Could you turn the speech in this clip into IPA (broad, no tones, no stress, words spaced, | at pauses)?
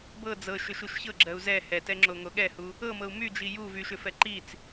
bɤ d͡zɤʃʏʃuʃ çɤɡ͡ǁɜu̯ zɛ hɛtɛŋ͡ǁoŋo ɠɛhu | ɤmɤu̯ myd͡ʒi ju vyʃʏfɛ ǃit͡s